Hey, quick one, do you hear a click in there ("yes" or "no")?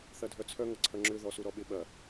yes